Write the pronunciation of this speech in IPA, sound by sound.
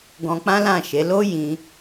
ɡ ɔ̃˧ k͡p ã˦ l ã˦˨ ʃ e˨˦ l o˦ j ĩ˧

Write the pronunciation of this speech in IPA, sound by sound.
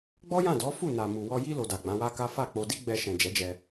ɡ͡b ɔ˦ j ã˦˨ d ɔ˨˦ f u˦˨ n a˨ m u˨ w ɔ˧ j i˦ l o˧ d a˨ ɡ͡b ã˨˦ w a˦ k a˦ f a˦˨ k͡p o˧ d i˦ ɡ͡b ɛ˧ ʃ ɛ̃˨ d͡ʒ ɛ˨˦ d͡ʒ ɛ˧

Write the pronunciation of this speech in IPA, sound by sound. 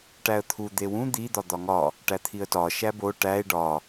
ʈ æ ə̯ t̪ʰ u d̪ e w ũ d̪ i d̪ ɒ d̪ ɒ ŋ ɒ | ʈ æ t̪ʰ i ə̯ t ɒ ʃ æ b o ʈ æ ɪ̯ ɖ ɒ

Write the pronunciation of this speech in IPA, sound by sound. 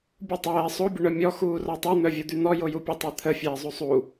bʲ u tˤ ɛː sˤ o bʲ ə ɳ œ mʲ ɔ x uː r ɔ tˤ u n̪ œ vʲ u d̪ y n̪ ɔ j o j u pʲ ə tˤ ɛ t̪ʰ ə fʲ ɛː zˤ u sˤ u

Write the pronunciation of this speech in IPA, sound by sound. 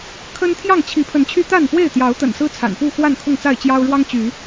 kʰ ə˦ n t̪ʰ j ɑ˥˨ ŋ t͡ɕʰ i˨˦ pʰ ə˨˦ n t͡ɕʰ y˦ t̪ a˥˨ n p w e˥˨ ɪ̯ t̪ j ɑ˨˦ ʊ̯ t̪ ə̰˨˩ n s ɹ̩˦ t͡sʰ a̰˨˩ n p u˥˨ x w a˥˨ n kʰ ʊ˥˨ ŋ t͡s a˥˨ ɪ̯ t͡ɕ j ɑ˦ ʊ̯ ɻ w ɑ˦ ŋ t͡ɕ y˨˦

